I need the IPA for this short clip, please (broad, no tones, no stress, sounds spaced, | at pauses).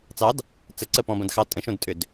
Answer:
t͡s ɑ d | t͡s ə ǀ ə p ɔ̃ b ɐ̃ d x ɑ tʼ ə̃ ʃ õ d tʼ ʏ d